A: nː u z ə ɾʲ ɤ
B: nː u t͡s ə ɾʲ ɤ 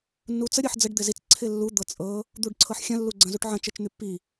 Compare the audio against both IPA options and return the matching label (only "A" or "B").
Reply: B